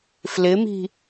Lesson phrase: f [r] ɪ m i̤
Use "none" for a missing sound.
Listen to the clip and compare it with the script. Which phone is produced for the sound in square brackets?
l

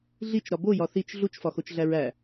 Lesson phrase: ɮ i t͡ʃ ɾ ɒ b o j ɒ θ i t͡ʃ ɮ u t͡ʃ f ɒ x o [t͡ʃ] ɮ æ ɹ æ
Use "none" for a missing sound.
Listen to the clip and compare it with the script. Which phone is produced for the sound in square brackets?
t͡ʃ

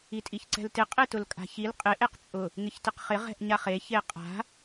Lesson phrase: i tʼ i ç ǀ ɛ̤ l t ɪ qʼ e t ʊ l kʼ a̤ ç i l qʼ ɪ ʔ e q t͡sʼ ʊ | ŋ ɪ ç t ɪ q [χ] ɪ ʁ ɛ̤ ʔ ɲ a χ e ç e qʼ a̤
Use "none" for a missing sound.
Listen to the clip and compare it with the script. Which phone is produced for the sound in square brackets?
χ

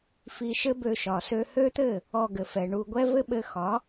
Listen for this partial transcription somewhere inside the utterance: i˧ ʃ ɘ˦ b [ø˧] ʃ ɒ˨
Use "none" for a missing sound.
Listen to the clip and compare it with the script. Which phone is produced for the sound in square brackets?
ø˧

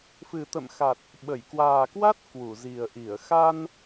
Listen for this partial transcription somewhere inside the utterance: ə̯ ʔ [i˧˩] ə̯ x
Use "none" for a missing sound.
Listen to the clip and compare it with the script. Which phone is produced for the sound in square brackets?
i˧˩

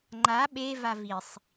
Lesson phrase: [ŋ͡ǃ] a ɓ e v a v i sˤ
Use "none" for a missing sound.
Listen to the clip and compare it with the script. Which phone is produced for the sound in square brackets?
ŋ͡ǃ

